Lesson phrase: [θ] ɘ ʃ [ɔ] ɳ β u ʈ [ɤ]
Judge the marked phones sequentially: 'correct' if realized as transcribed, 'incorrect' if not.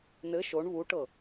incorrect, incorrect, correct

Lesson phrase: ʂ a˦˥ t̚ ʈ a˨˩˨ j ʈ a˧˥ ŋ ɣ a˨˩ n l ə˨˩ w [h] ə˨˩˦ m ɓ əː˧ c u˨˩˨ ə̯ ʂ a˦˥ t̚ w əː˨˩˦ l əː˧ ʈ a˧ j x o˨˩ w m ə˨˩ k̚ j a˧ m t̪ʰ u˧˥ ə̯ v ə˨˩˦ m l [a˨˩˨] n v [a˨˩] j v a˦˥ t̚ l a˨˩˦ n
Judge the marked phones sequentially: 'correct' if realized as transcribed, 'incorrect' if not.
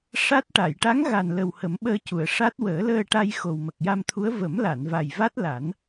correct, correct, correct

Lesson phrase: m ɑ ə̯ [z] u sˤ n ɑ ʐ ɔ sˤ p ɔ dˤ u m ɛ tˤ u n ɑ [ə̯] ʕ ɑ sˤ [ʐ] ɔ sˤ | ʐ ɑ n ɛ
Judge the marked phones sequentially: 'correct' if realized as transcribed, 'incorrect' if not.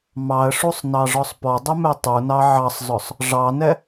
incorrect, incorrect, incorrect

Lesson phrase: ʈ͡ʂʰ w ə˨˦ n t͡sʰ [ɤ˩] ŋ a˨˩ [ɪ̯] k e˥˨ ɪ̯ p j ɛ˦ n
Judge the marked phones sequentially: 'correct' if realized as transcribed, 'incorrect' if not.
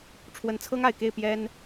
incorrect, correct

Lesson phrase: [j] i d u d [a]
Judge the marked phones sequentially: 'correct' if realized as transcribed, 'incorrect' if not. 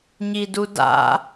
incorrect, incorrect

